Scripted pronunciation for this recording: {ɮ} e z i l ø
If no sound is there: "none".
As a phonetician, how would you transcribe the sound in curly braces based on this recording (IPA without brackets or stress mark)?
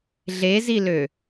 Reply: ɮ